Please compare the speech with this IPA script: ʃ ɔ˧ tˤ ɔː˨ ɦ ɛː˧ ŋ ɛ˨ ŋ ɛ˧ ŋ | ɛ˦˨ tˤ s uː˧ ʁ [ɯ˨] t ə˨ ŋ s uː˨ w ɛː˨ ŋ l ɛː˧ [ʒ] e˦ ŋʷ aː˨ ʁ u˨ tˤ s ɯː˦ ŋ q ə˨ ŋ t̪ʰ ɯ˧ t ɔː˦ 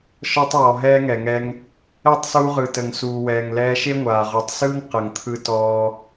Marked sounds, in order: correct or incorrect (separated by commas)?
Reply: correct, incorrect